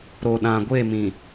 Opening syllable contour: low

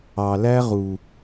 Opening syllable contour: low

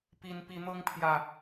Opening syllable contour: high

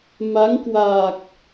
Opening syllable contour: rising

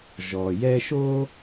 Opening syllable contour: low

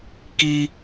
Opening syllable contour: high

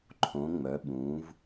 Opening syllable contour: rising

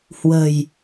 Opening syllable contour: low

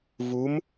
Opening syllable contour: rising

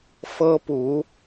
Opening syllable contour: high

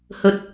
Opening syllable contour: high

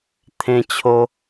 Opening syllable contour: high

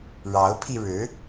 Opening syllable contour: rising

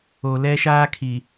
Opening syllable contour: low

